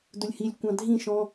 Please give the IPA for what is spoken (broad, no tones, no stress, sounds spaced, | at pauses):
d ʊ lʲ h i lʲ kʷ ɑ̃ dʱ ĩ ʃ ɔ̃